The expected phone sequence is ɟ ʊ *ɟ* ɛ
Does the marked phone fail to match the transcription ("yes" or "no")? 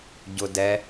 yes